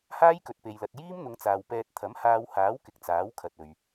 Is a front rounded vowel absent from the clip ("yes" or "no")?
yes